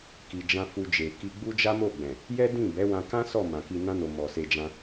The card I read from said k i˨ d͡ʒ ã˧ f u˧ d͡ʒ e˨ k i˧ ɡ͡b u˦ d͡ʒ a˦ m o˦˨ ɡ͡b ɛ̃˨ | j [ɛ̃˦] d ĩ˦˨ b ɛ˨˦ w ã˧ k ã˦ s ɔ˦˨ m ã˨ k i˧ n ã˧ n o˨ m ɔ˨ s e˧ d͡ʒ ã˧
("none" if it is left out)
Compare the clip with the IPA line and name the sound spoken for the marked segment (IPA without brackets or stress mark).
ɛ˦